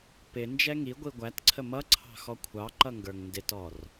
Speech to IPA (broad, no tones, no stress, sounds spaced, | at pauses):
p ɪ n d͡ʒ ɛ ŋ i ɡʷ i ɡʷ æ t ǀʰ ə m ʌ ǀʰ ɑ̤ x ɔ kʷʰ ɑ ǃ ʌ ŋ ɡ ə˞ ŋ n d ɪ t ɔ r